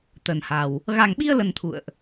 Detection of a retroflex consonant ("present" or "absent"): absent